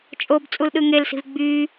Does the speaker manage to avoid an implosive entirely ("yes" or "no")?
no